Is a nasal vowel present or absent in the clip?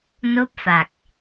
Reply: absent